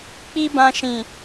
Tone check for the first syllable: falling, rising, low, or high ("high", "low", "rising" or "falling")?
high